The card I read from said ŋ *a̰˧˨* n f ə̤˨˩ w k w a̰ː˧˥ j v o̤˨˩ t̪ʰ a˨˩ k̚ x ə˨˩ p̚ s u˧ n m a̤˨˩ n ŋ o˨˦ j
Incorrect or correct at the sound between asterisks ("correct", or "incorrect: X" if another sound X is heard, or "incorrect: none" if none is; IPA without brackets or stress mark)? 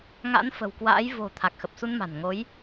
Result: incorrect: a̰˧˥